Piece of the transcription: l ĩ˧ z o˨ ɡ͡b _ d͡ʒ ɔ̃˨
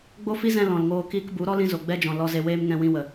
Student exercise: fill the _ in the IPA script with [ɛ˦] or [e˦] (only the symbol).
ɛ˦